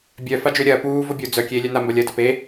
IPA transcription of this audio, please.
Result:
bʲ œ f a d͡ʒ ʏː ɾʲ ɐː p uː v o bʲ o d͡z œ kʲ eː lʲ œ n a m b ɐ lʲ ɐː d ɐ p e

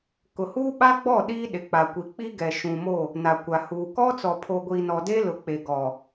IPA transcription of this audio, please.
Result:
k ʊ˨ h uː˦ ɓ a˦ ɡ͡b ɔ˦˨ ɗ iː˦ ɗ ɪ˨ k͡p a˨ kʷ i˨ k͡p i˦ ɡ ɛ˨ ʃ ũ˨ m o˦˨ | n a˨ kʷ a˨ h uː˨ k ɔ˦ t͡s ɔ˨ pʰ o˨ ɡʷ iː˨ n ɔ˨ d e˦ l ʊ˨ k͡p e˨ ɡ ɔ˨

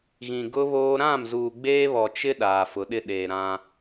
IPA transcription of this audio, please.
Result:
ɣ ĩ˨ ɡ ʊ˦ β oː˦ ɾ ã˦˨ m z uː˨ ɡ͡b eː˦ β ɔ˨ t͡ʃ ɪ˦ ɗ aː˨ f ʊ˨˦ ɗ ɪ˦ ɗ eː˨ ɾ ã˦

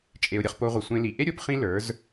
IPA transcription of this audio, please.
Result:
t͡ʃʼ e˨ ʊ̯ ɾʲ ʌ˧ χ p o˧ ʁʷ ʌ˨ sʷ ẽ˧ l i˨ ʔ e˦ ɾʲ o˨˦ p χ ĩ˦ l ə˞˨˦ z

